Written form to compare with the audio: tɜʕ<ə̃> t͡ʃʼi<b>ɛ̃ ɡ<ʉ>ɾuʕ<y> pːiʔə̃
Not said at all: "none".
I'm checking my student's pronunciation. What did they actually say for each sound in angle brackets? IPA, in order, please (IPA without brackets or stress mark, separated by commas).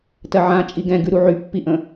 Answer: ã, ɡ, ʉ, y